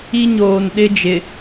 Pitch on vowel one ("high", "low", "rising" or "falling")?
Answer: high